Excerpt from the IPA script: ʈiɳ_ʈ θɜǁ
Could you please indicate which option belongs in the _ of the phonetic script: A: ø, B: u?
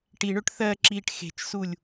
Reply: A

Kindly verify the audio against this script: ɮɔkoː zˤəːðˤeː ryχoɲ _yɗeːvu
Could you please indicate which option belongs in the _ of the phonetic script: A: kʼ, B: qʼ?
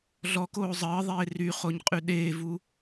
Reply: B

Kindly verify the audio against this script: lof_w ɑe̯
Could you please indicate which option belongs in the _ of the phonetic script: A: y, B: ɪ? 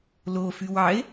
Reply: A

